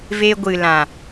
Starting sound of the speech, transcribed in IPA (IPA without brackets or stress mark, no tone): v